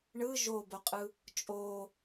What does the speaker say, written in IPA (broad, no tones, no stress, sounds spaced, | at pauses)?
ɳ ɯ ʒ o b o qʼ ɯ | t͡ʃʼ o